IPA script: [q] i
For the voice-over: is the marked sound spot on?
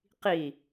yes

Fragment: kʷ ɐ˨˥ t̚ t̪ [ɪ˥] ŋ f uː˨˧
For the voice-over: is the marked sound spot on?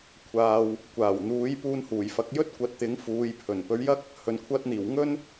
no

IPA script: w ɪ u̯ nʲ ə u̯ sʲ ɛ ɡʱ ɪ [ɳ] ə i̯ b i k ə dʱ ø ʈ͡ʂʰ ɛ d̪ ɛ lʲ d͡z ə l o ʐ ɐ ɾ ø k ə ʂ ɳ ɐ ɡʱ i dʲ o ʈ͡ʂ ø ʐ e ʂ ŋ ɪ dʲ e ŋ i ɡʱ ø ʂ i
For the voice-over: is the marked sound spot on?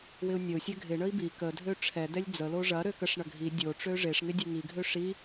yes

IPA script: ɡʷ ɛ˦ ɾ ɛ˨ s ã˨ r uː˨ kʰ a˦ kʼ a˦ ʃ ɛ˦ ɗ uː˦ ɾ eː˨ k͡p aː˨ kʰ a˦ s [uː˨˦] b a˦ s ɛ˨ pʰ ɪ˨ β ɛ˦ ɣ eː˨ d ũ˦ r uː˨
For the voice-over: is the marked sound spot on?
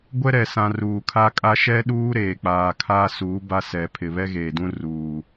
yes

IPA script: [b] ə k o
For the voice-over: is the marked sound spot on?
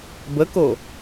yes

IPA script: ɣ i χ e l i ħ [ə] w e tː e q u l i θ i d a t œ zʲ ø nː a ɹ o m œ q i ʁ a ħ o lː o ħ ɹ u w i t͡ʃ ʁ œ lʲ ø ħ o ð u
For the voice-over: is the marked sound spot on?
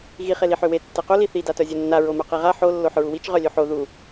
no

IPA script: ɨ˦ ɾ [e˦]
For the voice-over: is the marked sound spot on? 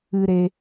yes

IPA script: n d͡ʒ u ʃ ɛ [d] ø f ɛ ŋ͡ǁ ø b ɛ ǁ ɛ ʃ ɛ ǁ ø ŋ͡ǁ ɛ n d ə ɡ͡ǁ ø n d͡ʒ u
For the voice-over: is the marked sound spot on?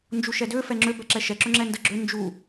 yes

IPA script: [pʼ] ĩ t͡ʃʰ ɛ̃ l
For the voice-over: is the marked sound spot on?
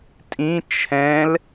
no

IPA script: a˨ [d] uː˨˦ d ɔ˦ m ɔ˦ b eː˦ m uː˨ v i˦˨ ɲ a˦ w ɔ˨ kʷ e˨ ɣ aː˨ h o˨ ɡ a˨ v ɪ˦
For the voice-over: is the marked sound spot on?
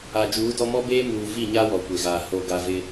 no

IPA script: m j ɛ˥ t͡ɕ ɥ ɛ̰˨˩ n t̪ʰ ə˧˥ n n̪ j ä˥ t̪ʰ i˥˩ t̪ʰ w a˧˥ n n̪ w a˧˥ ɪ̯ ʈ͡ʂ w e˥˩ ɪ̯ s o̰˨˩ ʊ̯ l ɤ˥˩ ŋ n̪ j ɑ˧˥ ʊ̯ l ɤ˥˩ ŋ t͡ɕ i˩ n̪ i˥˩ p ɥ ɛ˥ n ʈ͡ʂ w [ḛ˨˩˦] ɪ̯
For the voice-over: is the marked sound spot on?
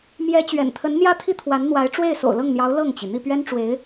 no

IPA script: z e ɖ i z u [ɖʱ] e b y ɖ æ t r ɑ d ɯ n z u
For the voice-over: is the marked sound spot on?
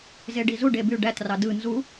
no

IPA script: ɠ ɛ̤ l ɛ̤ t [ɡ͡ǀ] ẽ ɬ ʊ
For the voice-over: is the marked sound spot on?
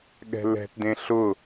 no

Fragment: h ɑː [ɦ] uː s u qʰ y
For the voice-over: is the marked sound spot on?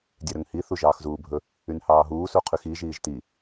yes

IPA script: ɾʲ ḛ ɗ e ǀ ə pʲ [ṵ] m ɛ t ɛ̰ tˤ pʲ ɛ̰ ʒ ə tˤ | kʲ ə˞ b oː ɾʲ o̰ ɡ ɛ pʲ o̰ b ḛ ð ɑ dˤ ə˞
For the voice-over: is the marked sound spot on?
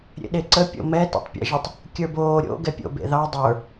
no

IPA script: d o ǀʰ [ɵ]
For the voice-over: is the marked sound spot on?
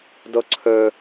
yes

